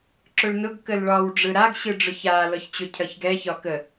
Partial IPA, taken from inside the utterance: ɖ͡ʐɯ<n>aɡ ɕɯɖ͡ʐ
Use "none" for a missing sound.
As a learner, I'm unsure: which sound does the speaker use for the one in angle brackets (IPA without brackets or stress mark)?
ɾ